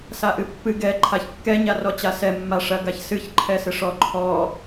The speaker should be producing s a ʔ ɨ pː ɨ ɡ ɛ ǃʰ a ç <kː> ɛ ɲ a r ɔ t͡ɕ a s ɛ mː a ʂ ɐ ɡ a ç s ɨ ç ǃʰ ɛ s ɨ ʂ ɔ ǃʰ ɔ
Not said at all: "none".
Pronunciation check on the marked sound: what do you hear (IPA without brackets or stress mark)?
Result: kː